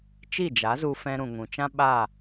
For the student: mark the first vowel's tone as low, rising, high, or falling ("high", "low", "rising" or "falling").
falling